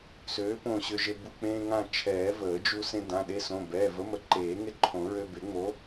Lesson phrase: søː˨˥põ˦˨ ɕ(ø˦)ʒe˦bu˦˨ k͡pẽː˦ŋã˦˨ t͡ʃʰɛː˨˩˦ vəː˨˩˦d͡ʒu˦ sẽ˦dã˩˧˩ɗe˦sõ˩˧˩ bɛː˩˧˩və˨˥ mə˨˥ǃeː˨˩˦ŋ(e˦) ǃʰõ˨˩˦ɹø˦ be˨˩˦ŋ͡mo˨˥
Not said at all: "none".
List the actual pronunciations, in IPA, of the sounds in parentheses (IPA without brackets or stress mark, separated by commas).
ø˦, e˦